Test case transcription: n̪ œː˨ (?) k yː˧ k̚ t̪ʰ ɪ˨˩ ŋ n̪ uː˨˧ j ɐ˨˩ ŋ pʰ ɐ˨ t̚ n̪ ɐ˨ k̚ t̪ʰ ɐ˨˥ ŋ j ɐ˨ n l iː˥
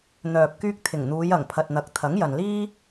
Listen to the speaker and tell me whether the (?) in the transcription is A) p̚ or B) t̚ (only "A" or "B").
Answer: A